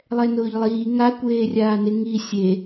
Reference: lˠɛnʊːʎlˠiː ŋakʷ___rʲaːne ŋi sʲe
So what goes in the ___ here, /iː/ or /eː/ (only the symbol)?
eː